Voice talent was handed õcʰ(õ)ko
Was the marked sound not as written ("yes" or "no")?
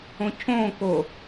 no